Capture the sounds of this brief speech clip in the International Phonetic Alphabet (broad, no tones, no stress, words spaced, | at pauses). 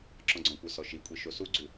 ǁɔ̃ɡ͡ǀɔ̃kʷə˞ sɔʃikʷʼi ʃosuɡ͡ǀʉ